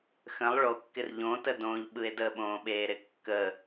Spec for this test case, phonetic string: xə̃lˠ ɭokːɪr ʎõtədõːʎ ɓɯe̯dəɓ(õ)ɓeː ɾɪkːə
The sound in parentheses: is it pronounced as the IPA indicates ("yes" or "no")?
no